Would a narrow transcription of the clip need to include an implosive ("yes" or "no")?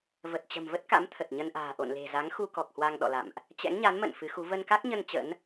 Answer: yes